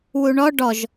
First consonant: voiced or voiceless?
voiced